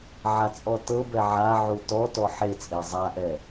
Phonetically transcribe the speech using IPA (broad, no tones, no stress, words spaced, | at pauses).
ʕat͡sʼɔtɤbɛ ʕa ʕutɔtɔ ħet͡sʼe zˤaʔɛ